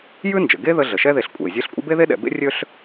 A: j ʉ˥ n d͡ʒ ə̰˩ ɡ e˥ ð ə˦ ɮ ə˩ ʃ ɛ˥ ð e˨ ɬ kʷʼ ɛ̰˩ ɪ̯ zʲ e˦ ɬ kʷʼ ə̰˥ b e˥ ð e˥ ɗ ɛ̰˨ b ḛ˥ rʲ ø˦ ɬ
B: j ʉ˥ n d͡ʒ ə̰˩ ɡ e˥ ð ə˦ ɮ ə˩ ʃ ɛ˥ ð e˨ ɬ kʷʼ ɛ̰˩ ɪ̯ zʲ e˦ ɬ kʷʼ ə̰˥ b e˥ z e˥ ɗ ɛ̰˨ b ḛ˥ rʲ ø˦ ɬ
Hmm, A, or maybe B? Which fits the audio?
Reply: A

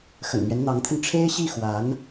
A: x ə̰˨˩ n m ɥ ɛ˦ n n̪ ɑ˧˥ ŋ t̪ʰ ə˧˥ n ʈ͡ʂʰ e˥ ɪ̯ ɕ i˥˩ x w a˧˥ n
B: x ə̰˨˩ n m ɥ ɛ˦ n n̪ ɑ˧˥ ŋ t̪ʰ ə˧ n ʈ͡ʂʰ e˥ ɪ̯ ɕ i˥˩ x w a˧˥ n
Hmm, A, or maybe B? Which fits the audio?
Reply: B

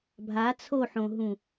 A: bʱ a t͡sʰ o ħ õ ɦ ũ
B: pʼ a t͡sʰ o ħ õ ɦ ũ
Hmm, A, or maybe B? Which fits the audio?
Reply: A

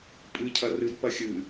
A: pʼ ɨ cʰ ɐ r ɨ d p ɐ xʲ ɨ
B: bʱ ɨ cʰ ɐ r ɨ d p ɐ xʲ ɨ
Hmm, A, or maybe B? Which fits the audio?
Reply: A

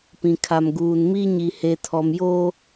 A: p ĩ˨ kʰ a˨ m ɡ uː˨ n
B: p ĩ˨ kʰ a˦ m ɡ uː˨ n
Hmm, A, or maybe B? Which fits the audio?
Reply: A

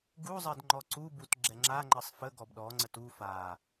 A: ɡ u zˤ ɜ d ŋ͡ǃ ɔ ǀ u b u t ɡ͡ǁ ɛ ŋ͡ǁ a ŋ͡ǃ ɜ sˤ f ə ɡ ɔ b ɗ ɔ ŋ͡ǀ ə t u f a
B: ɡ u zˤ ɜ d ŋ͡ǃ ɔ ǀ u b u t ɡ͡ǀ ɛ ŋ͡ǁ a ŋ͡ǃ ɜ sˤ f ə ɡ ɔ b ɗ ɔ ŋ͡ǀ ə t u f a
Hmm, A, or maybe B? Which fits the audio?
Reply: A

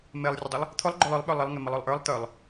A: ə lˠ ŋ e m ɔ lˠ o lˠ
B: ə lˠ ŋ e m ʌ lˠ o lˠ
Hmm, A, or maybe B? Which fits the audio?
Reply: B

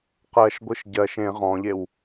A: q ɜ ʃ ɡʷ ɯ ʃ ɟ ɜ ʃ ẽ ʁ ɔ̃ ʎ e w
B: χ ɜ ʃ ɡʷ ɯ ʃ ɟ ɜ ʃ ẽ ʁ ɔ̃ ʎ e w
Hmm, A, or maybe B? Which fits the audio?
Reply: A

